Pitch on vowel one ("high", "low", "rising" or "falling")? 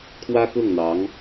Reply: high